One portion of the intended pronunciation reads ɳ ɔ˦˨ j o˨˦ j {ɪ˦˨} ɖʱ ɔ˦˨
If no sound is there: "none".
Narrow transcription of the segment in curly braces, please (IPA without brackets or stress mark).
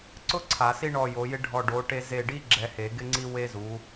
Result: ɪ˥